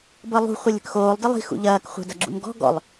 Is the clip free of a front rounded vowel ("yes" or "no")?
yes